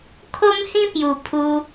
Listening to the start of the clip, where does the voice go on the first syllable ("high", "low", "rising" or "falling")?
high